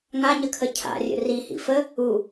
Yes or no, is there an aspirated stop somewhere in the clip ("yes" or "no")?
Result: yes